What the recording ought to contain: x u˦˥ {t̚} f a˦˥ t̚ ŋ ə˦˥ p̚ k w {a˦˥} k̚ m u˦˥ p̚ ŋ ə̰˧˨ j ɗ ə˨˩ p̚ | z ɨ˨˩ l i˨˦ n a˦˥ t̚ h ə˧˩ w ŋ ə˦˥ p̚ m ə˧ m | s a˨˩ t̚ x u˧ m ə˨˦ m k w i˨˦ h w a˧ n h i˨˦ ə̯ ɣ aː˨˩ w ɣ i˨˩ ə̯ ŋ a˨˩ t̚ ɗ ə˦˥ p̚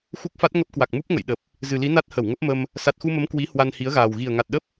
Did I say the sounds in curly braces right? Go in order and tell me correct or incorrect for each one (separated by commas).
incorrect, incorrect